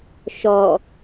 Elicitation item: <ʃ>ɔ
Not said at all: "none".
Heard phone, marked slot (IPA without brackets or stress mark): ʃ